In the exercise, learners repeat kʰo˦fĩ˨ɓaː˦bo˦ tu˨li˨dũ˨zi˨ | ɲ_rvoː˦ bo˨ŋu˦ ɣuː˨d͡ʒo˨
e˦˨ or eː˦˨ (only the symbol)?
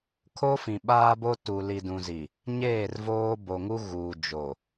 eː˦˨